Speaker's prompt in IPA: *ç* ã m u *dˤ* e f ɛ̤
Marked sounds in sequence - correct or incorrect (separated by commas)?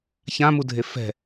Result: correct, incorrect